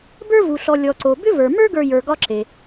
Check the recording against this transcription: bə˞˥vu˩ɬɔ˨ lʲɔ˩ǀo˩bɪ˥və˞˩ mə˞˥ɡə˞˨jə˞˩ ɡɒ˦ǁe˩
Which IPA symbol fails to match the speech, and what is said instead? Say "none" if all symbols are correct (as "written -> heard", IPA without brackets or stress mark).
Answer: ɪ˥ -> ʏ˥